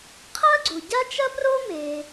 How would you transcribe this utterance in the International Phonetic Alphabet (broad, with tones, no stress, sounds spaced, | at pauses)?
qʰ ɐ˥ ɡ͡ǀ u˩ ɟ a˥ t͡ʃ ɐ˥ p r o˥ m e˩